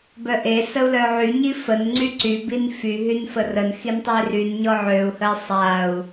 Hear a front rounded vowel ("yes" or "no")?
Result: yes